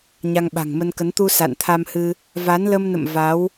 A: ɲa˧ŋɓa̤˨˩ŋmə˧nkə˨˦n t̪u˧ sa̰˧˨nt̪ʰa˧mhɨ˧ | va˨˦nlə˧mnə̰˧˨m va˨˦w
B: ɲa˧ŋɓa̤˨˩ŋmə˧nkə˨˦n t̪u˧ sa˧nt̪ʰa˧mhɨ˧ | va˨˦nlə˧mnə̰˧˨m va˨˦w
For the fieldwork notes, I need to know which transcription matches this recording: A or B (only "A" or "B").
A